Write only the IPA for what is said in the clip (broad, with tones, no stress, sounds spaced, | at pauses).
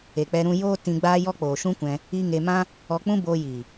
e˨ k͡p ɛ˧ ɾ ũ˧ j oː˦ t ĩ˧ ɡ͡b aː˦ j ɔ˦ k͡p oː˨ ʃ ũ˦ kʷ ɛ̃˧ | i˦ ŋ e˧ m ã˦ | ɔ˧ k͡p ũ˦ b oː˧ j iː˨